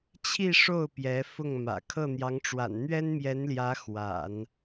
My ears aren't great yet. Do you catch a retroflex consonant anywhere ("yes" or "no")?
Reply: yes